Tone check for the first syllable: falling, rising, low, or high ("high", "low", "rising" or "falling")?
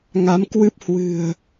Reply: rising